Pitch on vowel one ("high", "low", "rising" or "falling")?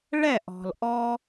falling